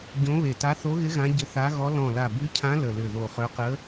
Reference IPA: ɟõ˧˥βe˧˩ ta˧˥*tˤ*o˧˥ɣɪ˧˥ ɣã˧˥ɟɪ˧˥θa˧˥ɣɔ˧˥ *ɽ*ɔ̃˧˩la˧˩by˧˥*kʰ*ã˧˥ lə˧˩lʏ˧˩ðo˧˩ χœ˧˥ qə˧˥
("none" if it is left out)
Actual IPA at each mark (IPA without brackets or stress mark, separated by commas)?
θ, l, cʰ